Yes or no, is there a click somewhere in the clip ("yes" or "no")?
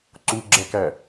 yes